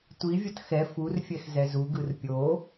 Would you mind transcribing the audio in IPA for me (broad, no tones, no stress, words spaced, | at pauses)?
tʷivʲʌt xɛ furfʲɛx zɛzuɡɯr pʲo